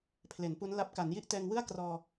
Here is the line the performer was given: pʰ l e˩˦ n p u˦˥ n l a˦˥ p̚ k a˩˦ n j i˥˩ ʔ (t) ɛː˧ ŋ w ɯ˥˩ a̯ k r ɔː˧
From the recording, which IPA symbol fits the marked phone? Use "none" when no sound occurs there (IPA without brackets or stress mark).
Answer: t